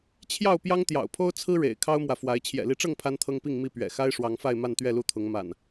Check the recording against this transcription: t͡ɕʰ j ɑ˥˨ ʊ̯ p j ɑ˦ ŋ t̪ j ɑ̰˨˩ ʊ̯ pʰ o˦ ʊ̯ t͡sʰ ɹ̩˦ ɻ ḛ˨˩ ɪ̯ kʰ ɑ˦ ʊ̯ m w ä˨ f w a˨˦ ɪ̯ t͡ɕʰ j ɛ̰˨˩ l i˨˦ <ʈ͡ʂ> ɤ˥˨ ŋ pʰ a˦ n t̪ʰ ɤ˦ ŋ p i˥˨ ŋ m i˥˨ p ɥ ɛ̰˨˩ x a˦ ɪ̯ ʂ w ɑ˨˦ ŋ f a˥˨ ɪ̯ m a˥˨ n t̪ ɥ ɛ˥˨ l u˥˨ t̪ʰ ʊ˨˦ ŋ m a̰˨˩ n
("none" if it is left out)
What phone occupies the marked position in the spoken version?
ʈ͡ʂ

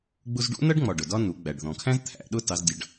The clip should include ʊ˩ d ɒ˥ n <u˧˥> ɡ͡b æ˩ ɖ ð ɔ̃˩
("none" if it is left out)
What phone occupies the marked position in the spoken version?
u˩˧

